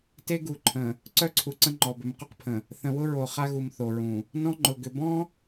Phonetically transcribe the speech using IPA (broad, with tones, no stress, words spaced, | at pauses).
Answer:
te˦ɡu˨ǃʰə̃˨ | ǀœ˦ǀʰu˨ǀə̃˦ ŋ͡ǃɔ˨bʏ˨˦mqʊ˦qpʰə̃˨ | θə̃˨wʊ˦ɹo˨ χa˦ɣu˨m θo˨ɹũ˨ | nɔ̃˦ ŋ͡ǃʊ˨ɡʏ˨ bɔ̃˦